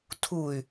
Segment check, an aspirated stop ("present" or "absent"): present